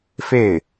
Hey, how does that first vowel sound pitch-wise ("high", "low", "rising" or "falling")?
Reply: falling